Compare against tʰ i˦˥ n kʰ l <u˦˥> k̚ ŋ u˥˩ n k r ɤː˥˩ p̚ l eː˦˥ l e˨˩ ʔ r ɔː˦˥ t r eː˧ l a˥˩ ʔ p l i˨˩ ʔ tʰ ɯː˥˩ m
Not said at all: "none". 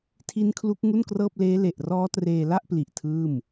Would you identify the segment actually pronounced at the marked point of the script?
u˦˥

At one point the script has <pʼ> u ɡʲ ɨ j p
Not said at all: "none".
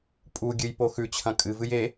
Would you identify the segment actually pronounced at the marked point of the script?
pʼ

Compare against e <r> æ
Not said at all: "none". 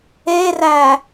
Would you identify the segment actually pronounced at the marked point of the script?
r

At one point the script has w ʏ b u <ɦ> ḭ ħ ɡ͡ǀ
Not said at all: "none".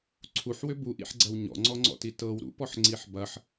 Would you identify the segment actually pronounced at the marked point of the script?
ʔ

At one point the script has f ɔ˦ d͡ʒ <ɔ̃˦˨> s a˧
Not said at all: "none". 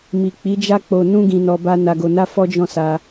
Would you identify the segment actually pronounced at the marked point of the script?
ɔ̃˦˨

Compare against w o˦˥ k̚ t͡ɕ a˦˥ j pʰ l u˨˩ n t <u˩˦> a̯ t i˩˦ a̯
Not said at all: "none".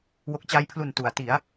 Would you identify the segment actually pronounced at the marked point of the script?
u˩˦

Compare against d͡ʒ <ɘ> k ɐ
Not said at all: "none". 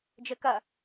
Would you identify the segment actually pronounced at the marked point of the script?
ɘ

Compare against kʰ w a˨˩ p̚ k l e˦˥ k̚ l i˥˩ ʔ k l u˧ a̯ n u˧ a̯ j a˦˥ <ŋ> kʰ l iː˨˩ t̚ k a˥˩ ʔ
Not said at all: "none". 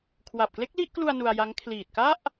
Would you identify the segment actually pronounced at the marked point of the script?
ŋ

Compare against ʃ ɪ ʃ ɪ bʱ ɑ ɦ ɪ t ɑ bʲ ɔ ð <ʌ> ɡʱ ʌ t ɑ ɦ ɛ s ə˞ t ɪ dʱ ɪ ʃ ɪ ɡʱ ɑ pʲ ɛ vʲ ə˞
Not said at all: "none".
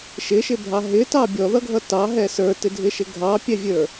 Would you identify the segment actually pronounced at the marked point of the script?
ʌ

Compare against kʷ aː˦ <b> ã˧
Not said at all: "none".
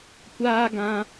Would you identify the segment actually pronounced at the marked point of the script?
ɡ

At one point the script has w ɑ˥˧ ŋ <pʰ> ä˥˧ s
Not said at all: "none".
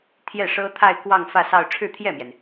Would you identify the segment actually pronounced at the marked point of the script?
f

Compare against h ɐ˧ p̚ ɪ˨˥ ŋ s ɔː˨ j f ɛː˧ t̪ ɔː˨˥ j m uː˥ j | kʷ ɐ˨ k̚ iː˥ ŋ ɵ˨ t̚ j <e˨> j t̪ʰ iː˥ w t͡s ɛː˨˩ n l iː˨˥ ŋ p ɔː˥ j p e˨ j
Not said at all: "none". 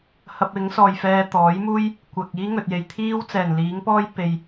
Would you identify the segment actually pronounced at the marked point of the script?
e˨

